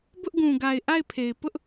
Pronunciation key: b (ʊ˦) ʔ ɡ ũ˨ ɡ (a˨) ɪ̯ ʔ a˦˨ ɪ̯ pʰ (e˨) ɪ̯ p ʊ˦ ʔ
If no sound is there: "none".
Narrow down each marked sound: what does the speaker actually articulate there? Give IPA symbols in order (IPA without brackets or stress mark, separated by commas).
ʊ˦, a˨, e˨